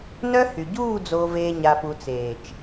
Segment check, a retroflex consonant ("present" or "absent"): absent